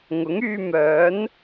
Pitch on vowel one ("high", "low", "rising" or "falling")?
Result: rising